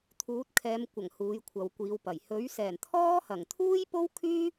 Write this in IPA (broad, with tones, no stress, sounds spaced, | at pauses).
t̪ʰ uː˨˥ t̚ kʰ ɛː˨˧ m kʷ ɐ˨˩ ŋ h uː˨˧ j kʷʰ ɐ˨ w kʷ iː˨˧ w p ɐ˨˩ j h ɵ˨˥ ɥ s ɛː˨˩ n t̪ʰ ɔː˥ h ɐ˨˩ ŋ t̪ʰ uː˥ j p o˥ w kʰ yː˥